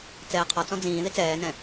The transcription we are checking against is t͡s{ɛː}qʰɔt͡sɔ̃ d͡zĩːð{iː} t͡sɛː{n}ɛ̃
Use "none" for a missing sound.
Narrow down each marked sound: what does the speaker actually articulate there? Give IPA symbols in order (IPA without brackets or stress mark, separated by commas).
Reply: ɛː, i, n